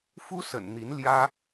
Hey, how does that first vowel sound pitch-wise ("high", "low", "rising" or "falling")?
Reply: high